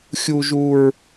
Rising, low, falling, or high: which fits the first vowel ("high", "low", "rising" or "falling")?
low